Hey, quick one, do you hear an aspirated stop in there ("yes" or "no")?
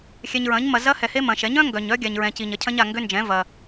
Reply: yes